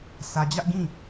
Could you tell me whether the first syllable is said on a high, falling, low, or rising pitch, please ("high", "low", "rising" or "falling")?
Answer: low